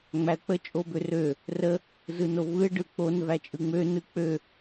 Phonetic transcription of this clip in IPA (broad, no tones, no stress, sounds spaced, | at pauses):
ŋ͡m æ ə̯ k͡p ə t͡ʃʼ o b ø r ø | r ə | z ɯ n o v ɯ ɪ̯ ɖ ɯ k͡p o n v æ t͡ʃʼ ɯ ŋ͡m ø n ɯ k͡p ø